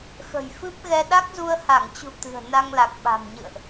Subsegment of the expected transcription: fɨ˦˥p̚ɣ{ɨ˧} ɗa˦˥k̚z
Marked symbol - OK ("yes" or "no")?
no